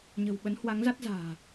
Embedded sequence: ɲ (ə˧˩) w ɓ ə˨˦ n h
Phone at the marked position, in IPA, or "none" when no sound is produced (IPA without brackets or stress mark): ə̤˨˩